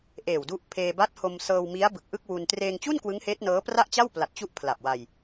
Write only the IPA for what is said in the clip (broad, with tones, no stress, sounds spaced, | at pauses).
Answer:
ʔ eː˨˩ w d u˦˥ ʔ pʰ eː˧ b a˦˥ t̚ h o˧ m s ɤː˧ w m i˦˥ a̯ b ɯ˨˩ k̚ ʔ ɯ˥˩ k̚ w u˧ n t r eː˧ ŋ t͡ɕ u˥˩ n k w ɯ˦˥ ŋ h eː˦˥ t̚ n ɤː˦˥ p r a˥˩ ʔ t͡ɕ a˥˩ w p l a˨˩ t̚ t͡ɕ u˦˥ ʔ pʰ l a˨˩ p̚ w a˧ j